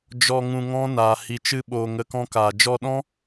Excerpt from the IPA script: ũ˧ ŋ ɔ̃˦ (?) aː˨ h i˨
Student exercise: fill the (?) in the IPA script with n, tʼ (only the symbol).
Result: n